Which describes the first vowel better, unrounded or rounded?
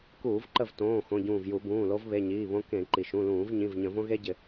rounded